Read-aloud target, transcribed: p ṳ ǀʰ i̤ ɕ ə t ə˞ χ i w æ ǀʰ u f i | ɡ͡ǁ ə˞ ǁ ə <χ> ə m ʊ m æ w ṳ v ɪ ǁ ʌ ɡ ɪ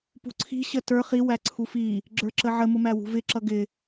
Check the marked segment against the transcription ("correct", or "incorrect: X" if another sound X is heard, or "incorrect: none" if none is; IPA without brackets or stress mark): incorrect: ʕ